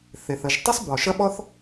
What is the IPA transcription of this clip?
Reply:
θe˩θ ə˩ʒ tˤʏ˥sˤbɔ˩ ʃɐ˥ɓɔ˥θ

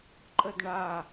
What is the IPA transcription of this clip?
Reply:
ǃʼədɳa

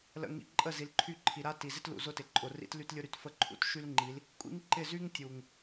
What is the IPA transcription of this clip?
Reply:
lə̰˨ŋḭ˨ ǃʼə˦˨ zi˨lǃʰy˦˨ǃʰi˨ ɾa˦ ti˨zɪ˦tlṵ˨ zʊ˦tɪ˨ǃʼʊ˨rḭ˦t ly˦tlʲʊ˦ɾy˨t fə˦ǃʰṵ˦t ʃy˦lŋ͡ǃi˨˦l | kʷʼḭ˦ŋǃɪ˦˨ zy˦ŋtʲu˨ŋ

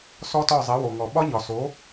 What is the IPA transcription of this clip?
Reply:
sɔ˥tɒ˥˩ zˤe˩˥wo˩ŋɔ˩ ɓɒ˥ɲɒ˩so˩˥

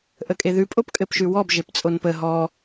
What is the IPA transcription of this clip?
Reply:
ʔəkʼeðʉ pʼopkʼɘpʃʉwɔb ʒept͡sʼonpə ɦɔ

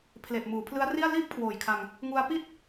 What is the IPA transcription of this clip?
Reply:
pʰle˨˩ʔmuː˩˦pʰlɯ˦˥a̯ri˥˩a̯ liː˥˩p̚kʰwoː˨˩jkʰa˧ŋ | ŋu˧a̯pi˥˩t̚

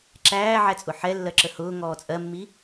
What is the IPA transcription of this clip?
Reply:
ǁæːʕæt͡sʼʊ ħɛlːɜǁə hʊː ŋɔːt͡sʼɜmːi

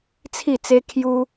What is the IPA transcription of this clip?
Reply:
t͡sʰi˥˧t͡se˦kʰju˦

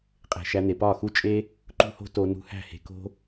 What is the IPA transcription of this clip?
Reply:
qʼe̤˨ʃæ˧n̪e˨ pɒ˦˨ xu˦t͡ʃʼe˦ | ǃṳ˦ho̤˦to˧ nṳ˧hæ̤˦˨he̤˧ko̤˦

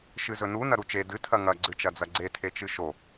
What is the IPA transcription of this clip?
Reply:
ʃɨzɵnu nɐɾut͡ʃe dɨ tʰɐŋɐ ɡ͡ǀɨt͡ʃɐd͡zɐɡ͡ǀe tʰet͡ʃɨʃo

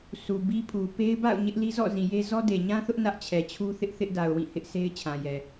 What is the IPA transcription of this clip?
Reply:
su˨bi˦pʰu˨ pe˦ɪ̯ba̰˦˨ʊ̯ ɲɪ˦ʔli˦ zɔ̰˦˨zĩ˨je˦ zɔ˦de˨ɲã˦θʊ˦ʔ nä˦ʔt͡ɕʰɛ˨t͡ɕʰu˦θɪ˦ʔ θɪ˦ʔda˨ʊ̯wĩ˦˨ hɪ˦ʔ sʰe˦ɪ̯t͡ɕʰã˨jɛ˨

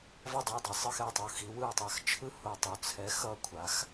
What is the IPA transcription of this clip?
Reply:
vʌ˥˩dˤe˥˩dˤɯ˧˩ sˤɯ˥˩xɛ˧˩tˤu˧˩ xi˩˥wɯ˧˩ə̯tˤa˧˩x t͡ʃʰɯ˥˩ho˧˩tˤu˩˥ t͡sʰɛ˩˥xʌ˧˩kʷʰa˩˥x

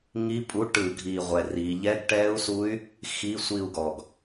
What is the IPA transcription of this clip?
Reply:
ŋi˦˥pʼu˧˥˧ ʈɯ˧˩˧ɡʱi˨˩ ʁʷɛ˨˩ri˩˧ʎɛ˧˥˧ɡ ʈɛ˦˥u̯su˦˥y̯ | xi˧˥˧sʷi˦˨u̯ɡɔ˨˩ɡ

